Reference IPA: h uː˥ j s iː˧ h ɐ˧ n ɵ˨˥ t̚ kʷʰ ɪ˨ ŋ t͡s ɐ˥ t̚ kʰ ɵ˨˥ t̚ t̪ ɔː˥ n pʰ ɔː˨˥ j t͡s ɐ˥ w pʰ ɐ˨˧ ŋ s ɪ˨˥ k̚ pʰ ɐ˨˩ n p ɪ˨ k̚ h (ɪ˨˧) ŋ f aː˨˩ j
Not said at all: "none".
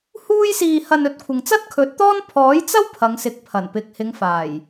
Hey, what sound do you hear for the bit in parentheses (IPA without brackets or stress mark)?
ɪ˨˧